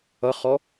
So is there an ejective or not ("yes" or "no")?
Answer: no